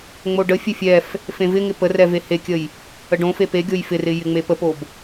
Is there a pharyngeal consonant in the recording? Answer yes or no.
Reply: no